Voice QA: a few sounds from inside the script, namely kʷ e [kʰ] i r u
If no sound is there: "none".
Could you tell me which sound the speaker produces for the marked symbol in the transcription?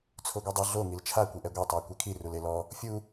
kʰ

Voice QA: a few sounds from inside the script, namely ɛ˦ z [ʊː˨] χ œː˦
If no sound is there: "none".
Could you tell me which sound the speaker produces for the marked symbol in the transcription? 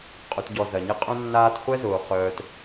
ʊː˨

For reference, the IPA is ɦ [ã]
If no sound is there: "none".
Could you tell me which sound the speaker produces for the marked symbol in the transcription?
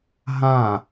ã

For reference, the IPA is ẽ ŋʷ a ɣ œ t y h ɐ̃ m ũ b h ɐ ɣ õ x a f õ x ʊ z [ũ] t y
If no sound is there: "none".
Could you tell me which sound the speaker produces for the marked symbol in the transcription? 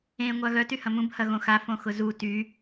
u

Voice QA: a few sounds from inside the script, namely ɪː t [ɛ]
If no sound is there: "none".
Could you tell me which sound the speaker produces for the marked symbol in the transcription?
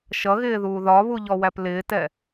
ɛ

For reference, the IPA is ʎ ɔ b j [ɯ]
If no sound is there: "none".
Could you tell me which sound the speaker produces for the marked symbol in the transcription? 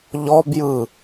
ɯ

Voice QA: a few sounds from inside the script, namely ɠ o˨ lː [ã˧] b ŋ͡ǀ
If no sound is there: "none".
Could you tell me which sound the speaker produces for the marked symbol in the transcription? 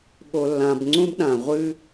ã˨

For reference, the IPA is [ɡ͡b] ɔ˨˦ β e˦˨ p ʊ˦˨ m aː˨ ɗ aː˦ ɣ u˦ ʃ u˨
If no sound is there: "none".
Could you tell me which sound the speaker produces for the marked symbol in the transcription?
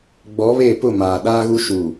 ɡ͡b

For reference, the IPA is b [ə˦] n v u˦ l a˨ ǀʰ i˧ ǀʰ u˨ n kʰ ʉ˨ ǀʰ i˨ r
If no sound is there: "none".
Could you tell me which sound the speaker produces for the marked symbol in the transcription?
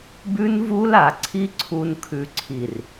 ʉ˦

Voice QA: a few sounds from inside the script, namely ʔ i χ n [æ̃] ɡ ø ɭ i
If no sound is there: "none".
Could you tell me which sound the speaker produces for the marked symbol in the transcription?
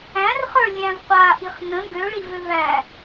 ə̃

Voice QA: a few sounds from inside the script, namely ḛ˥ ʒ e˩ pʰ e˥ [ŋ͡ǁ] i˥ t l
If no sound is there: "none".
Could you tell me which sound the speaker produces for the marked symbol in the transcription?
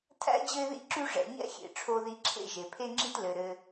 ŋ͡ǁ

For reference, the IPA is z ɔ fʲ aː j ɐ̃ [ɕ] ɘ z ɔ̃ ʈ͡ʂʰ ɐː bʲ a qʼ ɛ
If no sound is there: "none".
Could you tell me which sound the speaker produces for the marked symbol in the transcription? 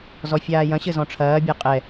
ɕ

